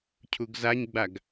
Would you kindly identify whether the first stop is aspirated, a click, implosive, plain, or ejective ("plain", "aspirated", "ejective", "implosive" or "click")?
aspirated